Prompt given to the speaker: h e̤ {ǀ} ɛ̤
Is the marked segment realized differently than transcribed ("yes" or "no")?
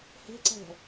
no